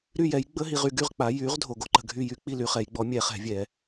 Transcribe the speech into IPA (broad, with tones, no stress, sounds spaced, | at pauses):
ɾ y˥˨ j ɛ˩˥ j ɡ͡b ə˧˥˧ ɦ i˨ ʁ y˨ ɡ y˥˨ ʁ k͡p a˩˥ j y˩˥ ʁ dʱ o˨ ɡ o˧˥ ǃ ə̤˨ ɡʱ y˥˨ j y˧˥ k͡p i˥˨ l y˨˩˦ χ ɛ˨˩˦ j ɡ͡b ɔ˩˥ mʲ ɛ˨˩˦ χ ɛ̤˨˩˦ vʲ ɛ˨˩˦